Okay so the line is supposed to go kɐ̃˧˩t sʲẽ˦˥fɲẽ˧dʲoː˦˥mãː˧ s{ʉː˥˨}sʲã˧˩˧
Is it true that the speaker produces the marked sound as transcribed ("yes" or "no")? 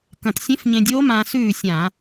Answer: yes